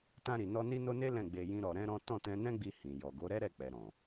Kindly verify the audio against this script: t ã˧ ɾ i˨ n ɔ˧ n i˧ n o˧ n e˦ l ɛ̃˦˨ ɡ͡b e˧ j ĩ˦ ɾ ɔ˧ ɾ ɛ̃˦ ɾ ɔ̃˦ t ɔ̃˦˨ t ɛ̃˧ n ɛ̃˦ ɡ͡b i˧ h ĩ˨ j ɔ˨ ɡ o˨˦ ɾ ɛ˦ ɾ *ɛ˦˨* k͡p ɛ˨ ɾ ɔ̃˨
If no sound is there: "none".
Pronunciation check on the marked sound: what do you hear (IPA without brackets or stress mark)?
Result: ɛ˦˨